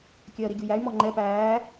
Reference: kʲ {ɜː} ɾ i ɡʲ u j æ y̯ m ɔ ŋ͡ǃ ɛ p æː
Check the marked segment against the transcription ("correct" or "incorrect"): correct